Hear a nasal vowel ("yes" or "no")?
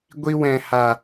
yes